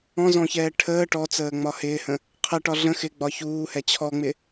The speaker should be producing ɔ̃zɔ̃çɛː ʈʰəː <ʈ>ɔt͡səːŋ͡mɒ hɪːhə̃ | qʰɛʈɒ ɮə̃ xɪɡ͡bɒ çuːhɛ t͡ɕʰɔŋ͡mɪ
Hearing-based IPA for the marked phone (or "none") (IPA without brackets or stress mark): ʈ